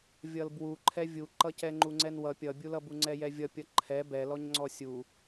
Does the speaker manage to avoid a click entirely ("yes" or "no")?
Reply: no